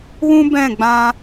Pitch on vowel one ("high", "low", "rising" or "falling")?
high